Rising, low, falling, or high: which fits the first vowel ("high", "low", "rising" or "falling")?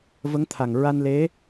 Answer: rising